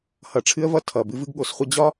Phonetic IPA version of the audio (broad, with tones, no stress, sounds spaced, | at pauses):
h ʌ˨ ʈ͡ʂʰ ɨ˦ ə̯ v ʌ˦ tʰ ʌ˨ b ɨ˦ v ɨ˦ ɡ ɠ o˨˦ s χʷ ə˦ d͡ʑ ɒ˦